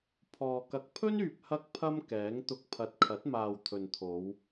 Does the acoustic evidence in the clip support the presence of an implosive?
no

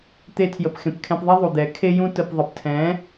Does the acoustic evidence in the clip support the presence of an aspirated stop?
yes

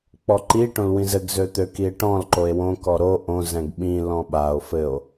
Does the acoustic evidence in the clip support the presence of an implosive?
yes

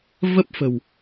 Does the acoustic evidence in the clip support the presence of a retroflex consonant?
no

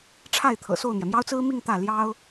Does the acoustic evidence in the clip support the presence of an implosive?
no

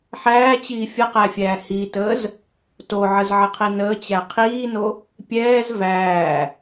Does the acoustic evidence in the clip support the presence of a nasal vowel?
no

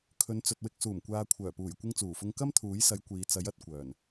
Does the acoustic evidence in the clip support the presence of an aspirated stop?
yes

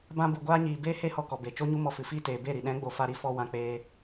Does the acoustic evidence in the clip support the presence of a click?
no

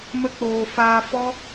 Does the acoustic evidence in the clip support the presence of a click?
no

